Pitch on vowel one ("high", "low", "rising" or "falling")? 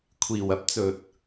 low